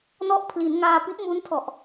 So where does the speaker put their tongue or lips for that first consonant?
tongue tip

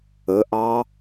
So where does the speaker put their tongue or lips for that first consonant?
throat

